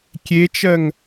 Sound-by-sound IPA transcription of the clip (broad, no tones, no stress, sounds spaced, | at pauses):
kʲ e t͡ʃ ɜ ŋ